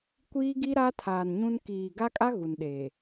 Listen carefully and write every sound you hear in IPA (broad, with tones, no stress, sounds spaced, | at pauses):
kʷ iː˦ ɡ i˦ ɾ a˦ tʰ aː˨ n ɲ ũ˦ n k iː˨ ɡ a˦ kʼ a˦ ɣ u˨ n ɗ eː˨